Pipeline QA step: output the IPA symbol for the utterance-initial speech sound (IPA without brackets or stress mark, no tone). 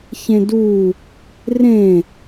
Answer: ç